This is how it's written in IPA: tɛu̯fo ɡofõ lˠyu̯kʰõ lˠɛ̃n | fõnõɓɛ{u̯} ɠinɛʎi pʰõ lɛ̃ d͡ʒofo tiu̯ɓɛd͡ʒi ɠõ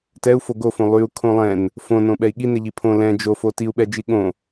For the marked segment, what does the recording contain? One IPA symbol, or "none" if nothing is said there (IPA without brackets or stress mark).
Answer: i̯